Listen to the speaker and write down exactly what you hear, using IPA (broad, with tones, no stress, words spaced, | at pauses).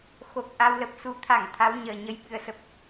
xo˨˩k̚ ʔa˧wlə˨˩p̚ su˨˩t̪ʰa˧˩ŋ t̪ʰa˨˦w ɲəː˨˩ ɲə˨˩j ɓɨ˨˩ə̯sə˨˩p̚